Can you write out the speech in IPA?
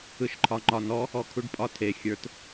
ɯ ʃ ǃʰ ɒ ŋ͡ǃ ɒ n ɔ | ɔ kʰ u ɖ pʼ ɒ tʰ e xʲ ə˞ t

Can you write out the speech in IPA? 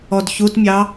ɔ d ç u t mʲ ɑ

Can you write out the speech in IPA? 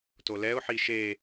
t o l ɛ ʊ̯ ħ i ʃ e

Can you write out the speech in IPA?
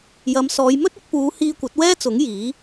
j ɐ˨˧ m s ɔː˨˧ j m ɵ˥ t̚ ɪ˨˥ k̚ p uː˨˧ h iː˧ kʷ ɐ˨˥ t̚ w ɛː˥ t͡s ʊ˨˥ ŋ j iː˨˥

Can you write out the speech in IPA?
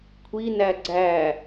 kʷʰ i n æ ɡ͡ǀ æ

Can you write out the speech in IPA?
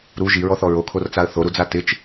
ɾ u ʒ i ɹ ɔ θ ɔ ɹ o kʰ o r t͡s a ə̯ θ o ɾ u d͡z a t ɪ t͡ʃ

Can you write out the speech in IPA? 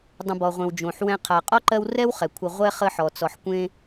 dˤ ə̃˨ b ɔ˩ ʁʷ ẽ˩ w d͡ʒ õ˩ ħ w ɛ̃˦ qʰ a˨ qʼ ɔ˥ ǃ ɜ˦ w r ɛ˥ w χ ɛ˩ kʷʰ ə˨ ʁʷ ɛ˥ χ ə˦ ħ ɔ˩ t͡s ɔ˨ ħ kʷ ẽ˥

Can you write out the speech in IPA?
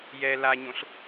j ɛ l a ɲ õ ɬ

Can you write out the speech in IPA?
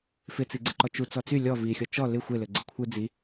f ɪ t͡s i ɡ͡ǀ ɪ ǃ ɔ t͡ʃ u t͡s ɔ t͡s y lʲ ɔ v i xʲ ɔ t͡ʃ ɔ l ɪ xʷ ɪ l ɘ ɡ͡ǀ ɪ kʷʰ ɯ d͡z i

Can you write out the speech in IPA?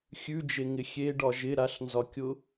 xʲ ʉ d͡ʒ e ŋ ɪ xʲ e ɖ ɒ ʒ ɪ ɾ a ɬ n z ɒ kʲ ʊ

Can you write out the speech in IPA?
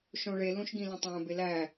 ʃ õ ɭ e l ũ ʃ ɡ ĩ l ẽ tˤ æ̃ b e l æ

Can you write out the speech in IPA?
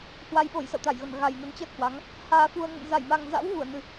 h w a˧ j ɓ o˧˩ j s ə̰˧˨ w t̪ a˧˩ j ɣ ə˧˩ n ɣ a˨˩ j n ə˨˦ n t͡ɕ əː˦˥ t̚ h w a˨˦ ŋ | h aː˧ f u˧ ə̯ ŋ ə̰˧˨ n z a˧˩ j m a˨˩ ŋ z a̰˧˥ w ɣ u˧˩ ə̯ n ɨ˨˩

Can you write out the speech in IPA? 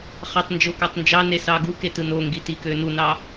χ ɑ tˤ n d͡ʒ o k ɑ tˤ n d͡ʒ ɑ n e s ɑ ɡ u k e t ɯ n o ŋ ɡ i t i k ø n u n ɑ

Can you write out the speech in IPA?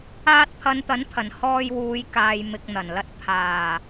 aː˧ t̚ pʰ ɐ˨˧ n t̪ ɐ˨˥ n pʰ ɐ˨˩ n h ɔː˧ j w uː˨˧ j k aː˨ j m ɪ˨ k̚ n̪ ɐ˨˩ n l ɐ˧ t̚ pʰ aː˨˩

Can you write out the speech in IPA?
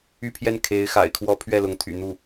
y˥˧ pʰ j ɛ˥˩ n kʰ e˧˥ ɪ̯ x a̰˨˩ ɪ̯ kʰ w ɔ˥ pʰ ɥ ɛ˥˩ l ʊ˧˥ ŋ t̪ʰ y̰˨˩ n̪ u˥˩

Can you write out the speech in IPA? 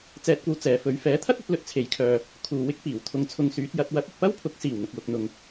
t͡s ɛː˧ t̚ kʷ ɐ˧ w t͡s ɛː˨˧ f ɵ˨˥ ɥ f ɛː˨˥ t̪ʰ ɐ˥ t̚ ɐ˧ t̚ l ɵ˧ t̚ t͡sʰ e˨˥ j kʰ œː˨ | kʰ uː˨ w ɪ˥ k̚ p iː˨˩ w t̪ʰ ʊ˧ ŋ t͡sʰ ʊ˧ ŋ s yː˨˥ t̚ j ɐ˨˥ t̚ w ɐ˨˥ t̚ ɪ˨ k̚ p ɐ˥ w pʰ ʊ˨˥ k̚ s iː˨˩ w n̪ ʊ˨ k̚ w ʊ˨ k̚ n̪ ʊ˨ ŋ

